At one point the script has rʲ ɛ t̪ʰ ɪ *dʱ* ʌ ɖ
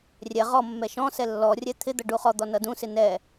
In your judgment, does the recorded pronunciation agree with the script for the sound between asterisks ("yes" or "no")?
no